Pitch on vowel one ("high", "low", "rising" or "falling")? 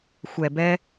low